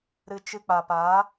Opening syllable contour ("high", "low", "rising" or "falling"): low